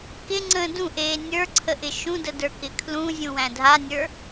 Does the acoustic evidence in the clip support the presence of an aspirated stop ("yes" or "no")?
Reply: yes